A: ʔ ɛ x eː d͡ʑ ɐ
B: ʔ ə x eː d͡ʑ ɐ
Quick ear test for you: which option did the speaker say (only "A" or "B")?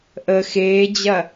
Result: B